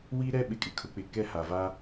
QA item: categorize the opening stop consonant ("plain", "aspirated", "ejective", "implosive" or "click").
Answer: implosive